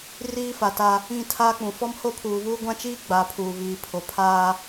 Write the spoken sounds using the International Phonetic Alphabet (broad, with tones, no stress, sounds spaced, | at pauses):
r iː˦ f a˨ t a˦ | ĩ˦˨ tʰ aː˦ k͡p ũ˨ f ɔ˦ m h o˦ pʰ uː˨ β uː˦ ɡʷ ã˦ t͡ʃ iː˦ ɡ͡b a˨˦ pʰ uː˨ β iː˨ pʰ o˨ pʰ aː˦